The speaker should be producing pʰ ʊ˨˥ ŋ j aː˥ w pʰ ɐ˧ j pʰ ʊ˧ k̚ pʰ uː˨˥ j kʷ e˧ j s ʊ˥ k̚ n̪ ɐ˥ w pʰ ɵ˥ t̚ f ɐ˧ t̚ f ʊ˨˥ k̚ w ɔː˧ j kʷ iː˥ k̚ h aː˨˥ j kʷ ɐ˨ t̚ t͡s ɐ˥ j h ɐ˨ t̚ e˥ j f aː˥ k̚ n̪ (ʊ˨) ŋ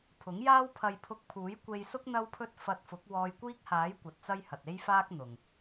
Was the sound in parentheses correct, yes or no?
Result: yes